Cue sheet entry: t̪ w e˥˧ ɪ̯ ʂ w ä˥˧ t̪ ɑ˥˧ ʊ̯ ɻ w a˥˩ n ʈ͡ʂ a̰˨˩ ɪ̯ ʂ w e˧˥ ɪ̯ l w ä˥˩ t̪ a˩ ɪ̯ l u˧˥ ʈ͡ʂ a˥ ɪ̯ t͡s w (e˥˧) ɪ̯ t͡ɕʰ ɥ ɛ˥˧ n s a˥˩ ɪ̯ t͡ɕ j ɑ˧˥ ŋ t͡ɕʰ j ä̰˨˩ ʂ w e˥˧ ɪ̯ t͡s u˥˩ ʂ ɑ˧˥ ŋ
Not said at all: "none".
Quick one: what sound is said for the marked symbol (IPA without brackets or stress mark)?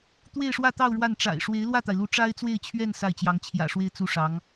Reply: e˥˧